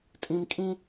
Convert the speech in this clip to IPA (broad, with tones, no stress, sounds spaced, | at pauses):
tʼ ĩ˦ m kʼ ĩ˥